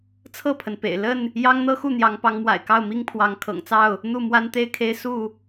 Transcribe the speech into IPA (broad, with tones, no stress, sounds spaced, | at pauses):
t͡sʰ ɤ˥˨ pʰ ə˩ n p ḛ˨˩ ɪ̯ l ə˥˨ n | j ɑ˦ ŋ n̪ ɤ˦ x u˥˨ n̪ j ɑ˨˦ ŋ p ɑ˨˦ ŋ m w a̰˨˩ ɪ̯ k ɑ˥˨ ʊ̯ m i˦ ŋ pʰ w ɑ˨˦ ŋ kʰ ɤ̰˨˩ ŋ t͡s ɑ˥˨ ʊ̯ | n̪ u˥˨ m w a˦ n t̪ e˥˨ ɪ̯ kʰ e˦ ɪ̯ s u˥˨